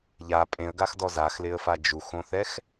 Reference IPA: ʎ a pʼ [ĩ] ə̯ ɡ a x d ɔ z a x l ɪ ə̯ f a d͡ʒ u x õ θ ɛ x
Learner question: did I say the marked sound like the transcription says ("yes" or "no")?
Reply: no